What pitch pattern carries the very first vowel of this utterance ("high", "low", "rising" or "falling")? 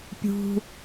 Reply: high